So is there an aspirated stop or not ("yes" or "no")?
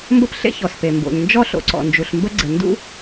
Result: no